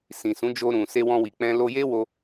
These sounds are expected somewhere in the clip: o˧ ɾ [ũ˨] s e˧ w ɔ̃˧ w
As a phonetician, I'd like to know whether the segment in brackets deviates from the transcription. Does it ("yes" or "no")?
no